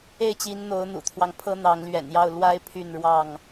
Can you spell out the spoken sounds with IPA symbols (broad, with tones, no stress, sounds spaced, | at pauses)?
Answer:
e˥˨ ɪ̯ t͡ɕ i˨˦ n n̪ o˨˦ ʊ̯ n̪ ṵ˨˩ t̪ʰ w ɑ˦ ŋ pʰ ɤ˦ n̪ ɑ˨˦ ŋ l ɥ ɛ̰˨˩ n j ɑ˥˨ ʊ̯ l w a˦ ɪ̯ pʰ y˥˨ n ɻ w ɑ˥˨ ŋ